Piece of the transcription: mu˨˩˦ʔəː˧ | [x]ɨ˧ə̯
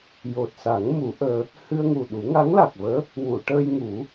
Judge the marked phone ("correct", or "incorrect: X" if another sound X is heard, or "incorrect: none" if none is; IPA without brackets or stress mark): incorrect: h